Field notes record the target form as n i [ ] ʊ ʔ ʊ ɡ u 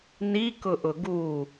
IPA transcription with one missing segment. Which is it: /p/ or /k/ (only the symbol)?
k